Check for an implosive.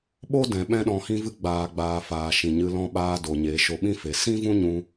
present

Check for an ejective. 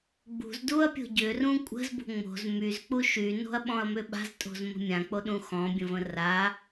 present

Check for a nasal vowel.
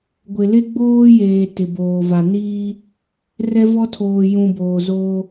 present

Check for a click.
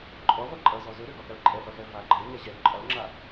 present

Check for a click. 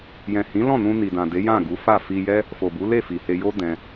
absent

